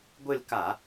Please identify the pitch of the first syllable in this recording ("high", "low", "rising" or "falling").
falling